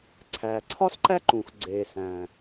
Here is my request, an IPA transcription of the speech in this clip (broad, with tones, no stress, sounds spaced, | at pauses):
ǀʰ æː˩ ǀʰ ɒ˥ s ǃ æ˥ ǃ ũː˩ x ɡ͡ǀ eː˩ s æ̃˩